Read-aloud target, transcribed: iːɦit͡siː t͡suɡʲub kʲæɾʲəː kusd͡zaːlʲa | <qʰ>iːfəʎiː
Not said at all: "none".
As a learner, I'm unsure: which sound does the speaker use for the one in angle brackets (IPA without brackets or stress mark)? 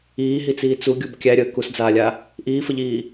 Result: ʔ